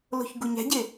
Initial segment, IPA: l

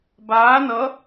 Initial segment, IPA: b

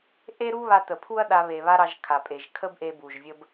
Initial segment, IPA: ʔ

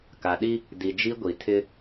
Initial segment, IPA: k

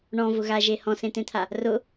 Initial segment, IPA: ɳ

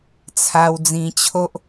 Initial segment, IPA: t͡sʰ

